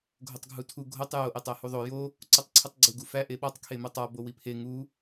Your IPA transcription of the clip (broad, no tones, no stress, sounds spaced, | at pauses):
ɡʱ o tˤ ɡʱ u tʰ u ɡʱ o tˤ j o ʔ e tˤ æ h u ðˤ o j o | ǀ u tˤ ǀʰ u tˤ ɡ͡ǀ u ɡ u f æ ʔ e ɓ ɒ tˤ kʰ e m o tˤ ɒ b o w i pʰ e ŋ u